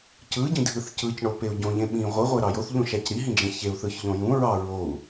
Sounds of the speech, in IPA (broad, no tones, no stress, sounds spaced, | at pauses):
c ɯ ɟ ĩ dʱ ɯ θ c ɯ c ɳ o p e u̯ ɟ õ ʎ ẽ ɓ ĩ ʁʷ ɯ ʁʷ e ɾ ɑ j o θ ʎ ũ ʃ æ c ɾ i ɦ ĩ d͡ʒ ẽ ç e u̯ θ ɯ ç ʎ õ j ũ ɹ ɑ ɹ o u̯